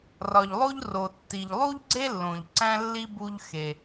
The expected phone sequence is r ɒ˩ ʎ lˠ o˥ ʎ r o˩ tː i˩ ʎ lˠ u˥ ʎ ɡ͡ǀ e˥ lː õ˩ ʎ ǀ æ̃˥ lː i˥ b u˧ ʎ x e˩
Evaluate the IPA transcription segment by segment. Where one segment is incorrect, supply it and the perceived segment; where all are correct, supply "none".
none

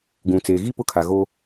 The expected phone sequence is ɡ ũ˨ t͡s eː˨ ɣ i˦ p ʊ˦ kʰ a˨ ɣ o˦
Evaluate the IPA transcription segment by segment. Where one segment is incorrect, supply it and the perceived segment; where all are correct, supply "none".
none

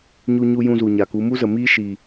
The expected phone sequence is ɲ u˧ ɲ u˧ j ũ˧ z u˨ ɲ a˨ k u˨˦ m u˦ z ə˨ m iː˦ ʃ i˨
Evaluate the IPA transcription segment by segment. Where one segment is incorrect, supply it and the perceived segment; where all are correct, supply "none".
none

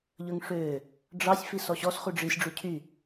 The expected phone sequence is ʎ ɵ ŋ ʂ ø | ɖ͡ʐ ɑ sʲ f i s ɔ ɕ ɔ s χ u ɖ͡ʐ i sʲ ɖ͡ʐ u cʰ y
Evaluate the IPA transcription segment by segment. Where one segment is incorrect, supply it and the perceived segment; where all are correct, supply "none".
none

